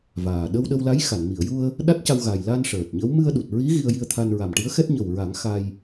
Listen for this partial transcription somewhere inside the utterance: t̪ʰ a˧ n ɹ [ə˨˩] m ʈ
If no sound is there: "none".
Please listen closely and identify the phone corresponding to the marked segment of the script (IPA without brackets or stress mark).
a˨˩